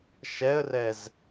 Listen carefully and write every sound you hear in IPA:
ʃ ɛ ə̯ r ɛ z

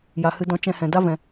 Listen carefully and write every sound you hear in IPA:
j a˧ h ɨ˦ d ɔ̃˦ t͡ʃ ɛ̃˧ h ɛ̃˨ d a˦ v ɛ̃˨

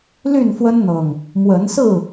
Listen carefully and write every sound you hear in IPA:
l y˥˨ n f w ə˦ n n̪ ɤ˨˩ ŋ | m w ə˨˦ n s ɹ̩˥˨

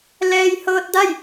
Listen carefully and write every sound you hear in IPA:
l ɛː˧ j h ɤː˧ t̚ d a˥˨ j

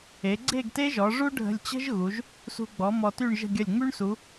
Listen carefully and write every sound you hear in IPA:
e˩˧ ɡ͡ǀ e˥˧ ɡ t e˥ ʒ ɔ˩˧ ʐ u˥ ɖʱ ə̤˧ lʲ t͡ɕ ə̤˥ ʒ ɣ u˩˧ ʒ | s ṳ˧ ɡ͡b ɔ˩˧ m ɔ˧ t y˥˧ ɳ ʒ ə̤˥˧ ɡʲ ə˧˩ lʲ ŋ͡m y˥ ɳ s u˩˧

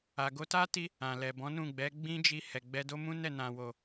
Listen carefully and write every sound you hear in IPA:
a˨ ɡ o˧ t a˦ t i˧ | ã˨ l ɛ˨ b ɔ̃˨˦ n ũ˦˨ ɡ͡b ɛ˨˦ ɡ͡b ĩ˦ d͡ʒ i˧ h ɛ˨ ɡ͡b ɛ˧ d o˦ m ũ˦ n ɛ˦˨ n ã˨ w o˨

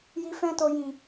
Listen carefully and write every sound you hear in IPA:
j i˧ f ɛ̃˧ t o˨ j ĩ˨

